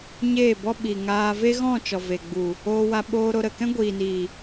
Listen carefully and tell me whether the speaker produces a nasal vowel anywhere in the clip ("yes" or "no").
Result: yes